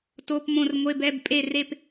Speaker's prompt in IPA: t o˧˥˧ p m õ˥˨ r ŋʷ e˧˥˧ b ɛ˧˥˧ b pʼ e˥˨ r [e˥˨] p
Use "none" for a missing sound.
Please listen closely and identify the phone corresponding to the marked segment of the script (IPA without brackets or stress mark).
e˥˨